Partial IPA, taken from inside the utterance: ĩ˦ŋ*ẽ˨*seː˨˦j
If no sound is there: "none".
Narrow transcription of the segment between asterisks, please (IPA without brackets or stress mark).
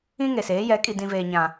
e˨